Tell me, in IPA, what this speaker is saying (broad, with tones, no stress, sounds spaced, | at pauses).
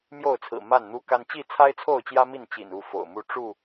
m j o˥˨ ʊ̯ t͡sʰ ɹ̩˨˩ m a˥˨ n n̪ u˦ k a˦ n t͡ɕ i˥˨ t͡sʰ a˦ ɪ̯ t͡sʰ o˥˨ ʊ̯ t͡ɕ j ä˦ m i˥˨ n t͡ɕ ḭ˨˩ n u˥˨ f o̰˨˩ ʊ̯ m u˥˨ ʈ͡ʂ u˥˨